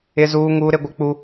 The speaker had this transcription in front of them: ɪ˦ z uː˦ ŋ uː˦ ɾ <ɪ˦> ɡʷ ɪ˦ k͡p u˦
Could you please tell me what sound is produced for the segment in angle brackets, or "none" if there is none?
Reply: ɪ˦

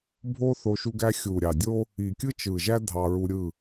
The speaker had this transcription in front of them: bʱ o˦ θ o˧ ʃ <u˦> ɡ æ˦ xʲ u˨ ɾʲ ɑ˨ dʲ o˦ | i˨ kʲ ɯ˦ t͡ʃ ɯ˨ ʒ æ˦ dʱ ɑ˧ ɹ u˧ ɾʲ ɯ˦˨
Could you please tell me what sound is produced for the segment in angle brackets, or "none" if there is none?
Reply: u˦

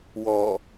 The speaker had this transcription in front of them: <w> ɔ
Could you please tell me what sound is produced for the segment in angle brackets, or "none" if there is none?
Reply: w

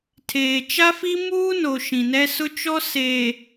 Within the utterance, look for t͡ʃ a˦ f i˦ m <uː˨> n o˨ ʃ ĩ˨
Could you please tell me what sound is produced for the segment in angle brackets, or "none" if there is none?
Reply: uː˦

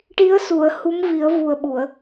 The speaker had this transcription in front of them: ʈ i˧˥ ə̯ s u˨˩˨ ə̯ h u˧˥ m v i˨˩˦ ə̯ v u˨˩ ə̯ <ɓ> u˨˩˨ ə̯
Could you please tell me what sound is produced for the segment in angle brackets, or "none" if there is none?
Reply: ɓ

